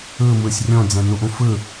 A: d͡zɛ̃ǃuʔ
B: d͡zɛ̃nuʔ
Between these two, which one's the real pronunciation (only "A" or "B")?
B